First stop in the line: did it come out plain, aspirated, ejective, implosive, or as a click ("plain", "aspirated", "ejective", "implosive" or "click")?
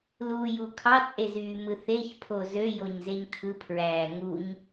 aspirated